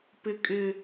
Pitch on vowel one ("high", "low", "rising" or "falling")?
high